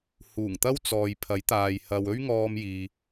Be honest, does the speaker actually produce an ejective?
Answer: no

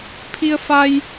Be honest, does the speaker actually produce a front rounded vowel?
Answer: no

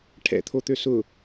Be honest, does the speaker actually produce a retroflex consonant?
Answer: yes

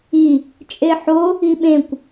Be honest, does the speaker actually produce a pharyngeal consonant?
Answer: yes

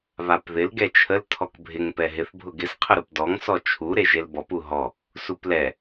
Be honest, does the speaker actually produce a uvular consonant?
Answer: yes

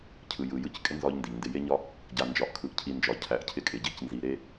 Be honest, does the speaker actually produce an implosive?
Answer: no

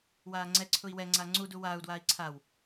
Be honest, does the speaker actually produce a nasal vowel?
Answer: no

